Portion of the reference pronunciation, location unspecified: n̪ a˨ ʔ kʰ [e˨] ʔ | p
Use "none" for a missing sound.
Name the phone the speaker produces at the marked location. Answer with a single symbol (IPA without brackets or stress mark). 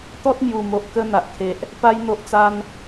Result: e˨